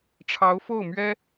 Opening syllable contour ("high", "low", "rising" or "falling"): rising